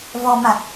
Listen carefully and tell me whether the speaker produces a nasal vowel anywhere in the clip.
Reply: no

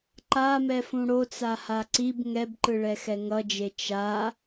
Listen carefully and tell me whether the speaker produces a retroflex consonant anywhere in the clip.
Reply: yes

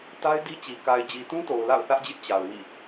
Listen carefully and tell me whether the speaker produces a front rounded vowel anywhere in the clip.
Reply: no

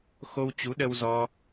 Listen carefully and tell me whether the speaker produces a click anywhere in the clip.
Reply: no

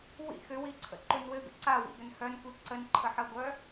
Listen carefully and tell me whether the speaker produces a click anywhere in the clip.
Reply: yes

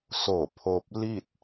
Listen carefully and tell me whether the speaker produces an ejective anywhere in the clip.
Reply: no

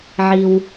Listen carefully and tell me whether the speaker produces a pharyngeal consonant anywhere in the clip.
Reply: yes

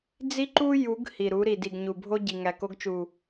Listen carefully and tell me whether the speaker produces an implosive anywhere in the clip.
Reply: no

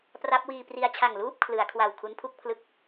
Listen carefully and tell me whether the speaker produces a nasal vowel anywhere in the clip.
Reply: no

